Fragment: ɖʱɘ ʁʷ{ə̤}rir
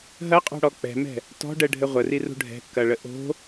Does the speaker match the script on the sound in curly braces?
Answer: no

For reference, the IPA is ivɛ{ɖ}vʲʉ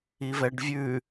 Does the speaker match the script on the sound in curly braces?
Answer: yes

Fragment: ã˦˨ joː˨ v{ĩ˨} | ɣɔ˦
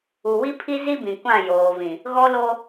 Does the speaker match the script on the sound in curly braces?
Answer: yes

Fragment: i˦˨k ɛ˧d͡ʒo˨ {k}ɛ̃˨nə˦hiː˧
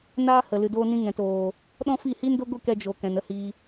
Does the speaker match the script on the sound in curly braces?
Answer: yes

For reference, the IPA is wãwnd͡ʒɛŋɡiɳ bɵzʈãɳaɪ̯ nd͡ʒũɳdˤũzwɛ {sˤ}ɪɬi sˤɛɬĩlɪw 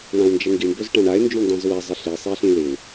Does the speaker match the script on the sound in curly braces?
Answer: no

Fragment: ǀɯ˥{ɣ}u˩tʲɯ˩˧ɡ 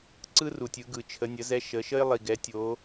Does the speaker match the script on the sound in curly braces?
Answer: no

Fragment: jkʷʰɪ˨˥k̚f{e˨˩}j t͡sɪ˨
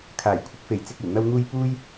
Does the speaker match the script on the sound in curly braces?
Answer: yes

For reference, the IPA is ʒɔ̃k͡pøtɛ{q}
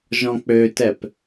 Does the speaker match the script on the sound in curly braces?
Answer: no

